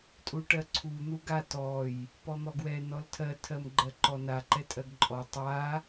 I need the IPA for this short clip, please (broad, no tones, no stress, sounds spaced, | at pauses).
tʼ u ʈ ɜ ǀʰ u n̪ u ɡ a t ɔ j | p ɔ n̪ ɔ ɡ w ɛ n ɔ l tʰ ɜ tʰ ɜ m ɡ͡ǃ ɜ ǃ ɔ n a ǃ ɛ tʼ ɜ ɡ ǃʼ ɔ tˤ a